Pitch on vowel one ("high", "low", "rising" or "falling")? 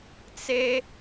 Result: high